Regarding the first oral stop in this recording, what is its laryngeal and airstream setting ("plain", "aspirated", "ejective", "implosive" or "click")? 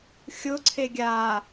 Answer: click